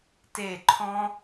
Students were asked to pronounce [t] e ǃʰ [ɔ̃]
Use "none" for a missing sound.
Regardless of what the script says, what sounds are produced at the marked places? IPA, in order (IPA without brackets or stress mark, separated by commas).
t, ɔ̃